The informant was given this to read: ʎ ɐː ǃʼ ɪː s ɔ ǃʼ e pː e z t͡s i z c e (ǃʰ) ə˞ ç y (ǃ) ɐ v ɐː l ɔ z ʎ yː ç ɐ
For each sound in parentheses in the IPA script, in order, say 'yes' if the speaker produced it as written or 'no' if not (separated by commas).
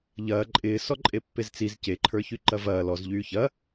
yes, yes